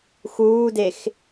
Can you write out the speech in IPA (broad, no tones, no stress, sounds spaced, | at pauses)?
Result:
x uː d e x